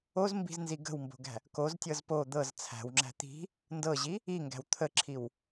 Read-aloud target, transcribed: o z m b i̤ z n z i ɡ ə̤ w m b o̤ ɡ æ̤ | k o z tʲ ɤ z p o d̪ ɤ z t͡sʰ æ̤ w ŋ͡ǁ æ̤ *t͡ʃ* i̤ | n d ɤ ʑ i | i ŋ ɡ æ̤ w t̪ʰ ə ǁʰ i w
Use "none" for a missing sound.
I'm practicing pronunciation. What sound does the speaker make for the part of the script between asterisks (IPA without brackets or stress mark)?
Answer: t̪